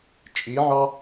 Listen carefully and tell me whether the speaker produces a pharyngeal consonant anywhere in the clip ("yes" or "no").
yes